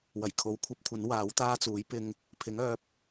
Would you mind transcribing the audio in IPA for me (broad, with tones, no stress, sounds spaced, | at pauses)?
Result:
w ɐ˨˩ j kʰ o˨˥ w kʷʰ ɐ˨˥ p̚ kʷʰ ɐ˨˥ n w aː˨˥ w t̪ aː˥ t͡s uː˨˥ j p ɪ˧ ŋ | pʰ ɪ˨˥ ŋ œː˨˥ p̚